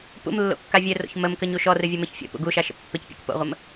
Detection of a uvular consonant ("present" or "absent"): present